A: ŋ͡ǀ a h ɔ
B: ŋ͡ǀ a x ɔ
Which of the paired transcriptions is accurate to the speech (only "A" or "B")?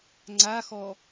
B